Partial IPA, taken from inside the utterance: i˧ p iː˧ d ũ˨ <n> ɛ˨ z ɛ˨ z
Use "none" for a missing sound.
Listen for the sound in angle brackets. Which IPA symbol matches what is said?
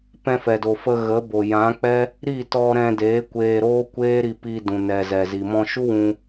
n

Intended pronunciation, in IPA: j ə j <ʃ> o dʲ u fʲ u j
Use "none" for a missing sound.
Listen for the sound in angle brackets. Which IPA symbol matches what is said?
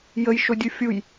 ʃ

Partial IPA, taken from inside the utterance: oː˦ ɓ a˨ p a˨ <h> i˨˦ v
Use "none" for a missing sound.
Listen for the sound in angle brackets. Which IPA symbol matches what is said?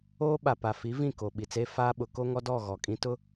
f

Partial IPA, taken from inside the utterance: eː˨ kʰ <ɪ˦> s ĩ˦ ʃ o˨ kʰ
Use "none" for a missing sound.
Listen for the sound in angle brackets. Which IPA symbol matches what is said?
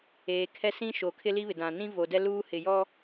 ɛ˦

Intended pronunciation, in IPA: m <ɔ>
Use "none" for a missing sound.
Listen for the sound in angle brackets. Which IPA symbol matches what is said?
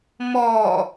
ɔ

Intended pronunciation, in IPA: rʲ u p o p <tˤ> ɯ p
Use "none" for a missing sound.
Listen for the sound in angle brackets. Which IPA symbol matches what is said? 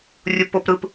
ɾ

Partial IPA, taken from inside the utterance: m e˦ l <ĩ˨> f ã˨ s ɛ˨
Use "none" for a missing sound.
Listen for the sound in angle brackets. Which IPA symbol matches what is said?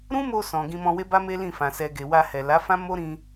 ĩ˦˨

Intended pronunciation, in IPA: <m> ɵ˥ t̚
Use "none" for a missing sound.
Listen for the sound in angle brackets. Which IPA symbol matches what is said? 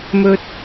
m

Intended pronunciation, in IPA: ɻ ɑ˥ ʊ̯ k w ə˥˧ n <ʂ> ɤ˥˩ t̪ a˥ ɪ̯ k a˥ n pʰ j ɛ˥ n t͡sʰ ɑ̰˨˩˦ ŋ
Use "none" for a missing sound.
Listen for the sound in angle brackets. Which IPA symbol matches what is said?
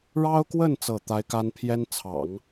t͡s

